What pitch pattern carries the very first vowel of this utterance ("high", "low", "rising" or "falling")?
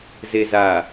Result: low